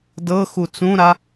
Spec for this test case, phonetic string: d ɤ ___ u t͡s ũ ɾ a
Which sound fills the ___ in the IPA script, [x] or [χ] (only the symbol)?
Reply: x